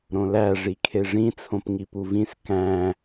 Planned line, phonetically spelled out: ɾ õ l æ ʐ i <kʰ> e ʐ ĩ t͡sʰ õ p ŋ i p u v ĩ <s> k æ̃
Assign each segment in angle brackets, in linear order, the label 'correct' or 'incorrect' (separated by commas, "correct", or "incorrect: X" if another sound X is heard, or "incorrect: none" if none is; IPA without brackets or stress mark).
correct, correct